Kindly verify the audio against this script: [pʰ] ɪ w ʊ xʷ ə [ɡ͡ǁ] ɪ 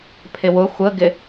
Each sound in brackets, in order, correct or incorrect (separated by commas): correct, incorrect